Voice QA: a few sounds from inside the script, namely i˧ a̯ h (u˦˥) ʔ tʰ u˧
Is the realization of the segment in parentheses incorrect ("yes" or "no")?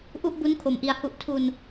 yes